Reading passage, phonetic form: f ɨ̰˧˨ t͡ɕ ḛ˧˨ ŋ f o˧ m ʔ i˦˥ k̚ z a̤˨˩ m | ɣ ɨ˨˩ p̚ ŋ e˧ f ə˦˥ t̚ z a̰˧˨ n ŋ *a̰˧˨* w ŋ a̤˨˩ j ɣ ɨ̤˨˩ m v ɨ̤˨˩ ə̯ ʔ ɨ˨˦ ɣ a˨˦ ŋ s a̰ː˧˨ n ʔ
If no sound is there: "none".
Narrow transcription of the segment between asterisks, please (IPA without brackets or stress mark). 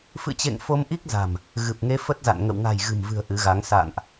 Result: ə̰˧˨